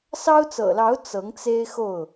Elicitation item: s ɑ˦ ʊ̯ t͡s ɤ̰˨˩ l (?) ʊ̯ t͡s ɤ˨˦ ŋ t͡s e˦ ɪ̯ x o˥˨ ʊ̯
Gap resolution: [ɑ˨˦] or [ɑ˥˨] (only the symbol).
ɑ˨˦